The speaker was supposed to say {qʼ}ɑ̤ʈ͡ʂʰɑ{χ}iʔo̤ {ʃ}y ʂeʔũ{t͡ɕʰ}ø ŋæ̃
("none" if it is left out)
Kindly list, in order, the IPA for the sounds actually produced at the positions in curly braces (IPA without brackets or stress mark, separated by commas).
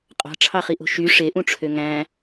qʼ, χ, ʃ, ʈ͡ʂʰ